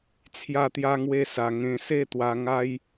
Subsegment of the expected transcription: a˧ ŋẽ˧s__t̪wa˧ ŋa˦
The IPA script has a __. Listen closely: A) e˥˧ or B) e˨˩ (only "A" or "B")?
A